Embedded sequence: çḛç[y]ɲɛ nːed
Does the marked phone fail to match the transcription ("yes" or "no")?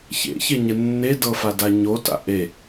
yes